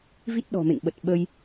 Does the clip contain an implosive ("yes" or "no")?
yes